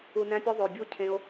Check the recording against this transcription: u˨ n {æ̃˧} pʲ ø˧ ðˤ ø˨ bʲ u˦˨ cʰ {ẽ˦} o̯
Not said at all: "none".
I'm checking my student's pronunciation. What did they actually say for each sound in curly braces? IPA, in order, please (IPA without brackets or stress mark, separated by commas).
æ̃˧, ẽ˦